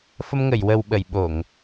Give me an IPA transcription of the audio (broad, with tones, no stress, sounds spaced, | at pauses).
f ə˧ m ŋ ə˨˩˨ j w ə˨˩ w ɓ ə˨˩˨ j ɓ o˨˩˨ ŋ